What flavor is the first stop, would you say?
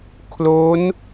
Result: aspirated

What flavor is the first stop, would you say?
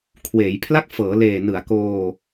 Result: aspirated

